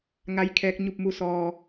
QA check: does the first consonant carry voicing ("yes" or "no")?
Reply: yes